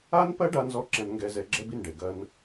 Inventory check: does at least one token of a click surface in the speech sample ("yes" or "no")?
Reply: yes